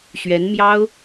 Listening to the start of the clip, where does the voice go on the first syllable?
rising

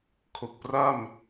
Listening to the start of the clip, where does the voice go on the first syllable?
low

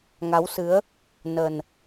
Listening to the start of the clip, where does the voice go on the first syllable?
rising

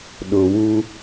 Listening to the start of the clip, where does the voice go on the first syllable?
low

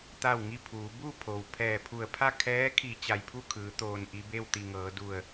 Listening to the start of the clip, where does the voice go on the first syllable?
falling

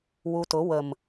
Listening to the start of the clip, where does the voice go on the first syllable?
low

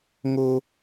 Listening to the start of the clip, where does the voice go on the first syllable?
high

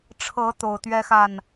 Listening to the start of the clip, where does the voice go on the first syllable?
rising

